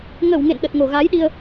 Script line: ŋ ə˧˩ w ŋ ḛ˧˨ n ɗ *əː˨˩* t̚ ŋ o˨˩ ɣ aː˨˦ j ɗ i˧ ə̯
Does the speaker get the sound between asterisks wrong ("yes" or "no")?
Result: yes